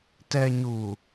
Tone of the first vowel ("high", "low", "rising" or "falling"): low